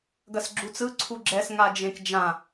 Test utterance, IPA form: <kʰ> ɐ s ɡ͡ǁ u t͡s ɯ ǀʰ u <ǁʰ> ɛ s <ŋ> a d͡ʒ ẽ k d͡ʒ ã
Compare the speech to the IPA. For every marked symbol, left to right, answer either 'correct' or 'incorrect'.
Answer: incorrect: ɡ, incorrect: ɡ͡ǁ, correct

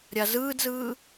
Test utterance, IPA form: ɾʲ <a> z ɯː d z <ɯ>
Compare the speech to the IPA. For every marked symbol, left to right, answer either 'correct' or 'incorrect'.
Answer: correct, incorrect: ɯː

